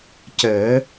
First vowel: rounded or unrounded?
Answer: unrounded